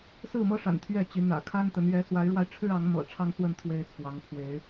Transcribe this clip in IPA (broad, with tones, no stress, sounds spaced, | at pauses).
s ɹ̩˥˨ m ɤ˦ ʂ a̰˨˩ n t̪ʰ ɥ ɛ˥˨ t͡ɕ y˨˦ n̪ ä̰˨˩ kʰ a˦ n t̪ ə˨˦ n ɥ ɛ˨˦ s w a˨˦ ɪ̯ ɻ w a˧ ɪ̯ ʈ͡ʂʰ ɻ̩˦ ɑ˨˦ ŋ m ɤ̰˨˩ ʈ͡ʂʰ ɑ˦ ŋ s w ə˥˨ n t̪ʰ w e˦ ɪ̯ t͡sʰ w ɑ˨˦ ŋ pʰ w e˨˦ ɪ̯